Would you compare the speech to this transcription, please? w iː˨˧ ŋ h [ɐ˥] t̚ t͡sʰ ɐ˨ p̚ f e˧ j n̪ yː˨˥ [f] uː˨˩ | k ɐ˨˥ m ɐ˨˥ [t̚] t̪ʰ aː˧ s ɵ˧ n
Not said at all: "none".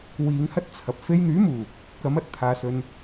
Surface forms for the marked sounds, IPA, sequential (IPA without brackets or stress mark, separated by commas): ɐ˥, m, t̚